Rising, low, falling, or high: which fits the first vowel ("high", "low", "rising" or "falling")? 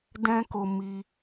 high